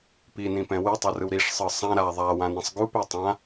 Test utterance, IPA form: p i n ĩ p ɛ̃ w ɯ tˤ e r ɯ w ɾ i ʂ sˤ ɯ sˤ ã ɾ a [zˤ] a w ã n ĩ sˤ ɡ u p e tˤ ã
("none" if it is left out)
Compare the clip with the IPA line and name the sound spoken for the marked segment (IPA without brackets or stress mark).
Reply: ðˤ